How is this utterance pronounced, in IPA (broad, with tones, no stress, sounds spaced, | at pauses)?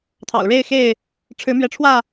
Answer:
t̪ʰ ɑ̰˨˩ ʊ̯ ɻ e˥˨ ɪ̯ x e˥˨ ɪ̯ | ʈ͡ʂʰ ɻ̩˨˦ m ɥ ɛ˨˦ ʈ͡ʂʰ w ä˥˨